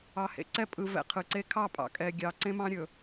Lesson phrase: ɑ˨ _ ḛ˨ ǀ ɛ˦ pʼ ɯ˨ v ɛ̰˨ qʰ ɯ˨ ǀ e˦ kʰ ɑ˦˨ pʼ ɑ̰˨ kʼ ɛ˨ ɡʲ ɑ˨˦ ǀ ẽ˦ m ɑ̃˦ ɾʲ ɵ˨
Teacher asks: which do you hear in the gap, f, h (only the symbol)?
h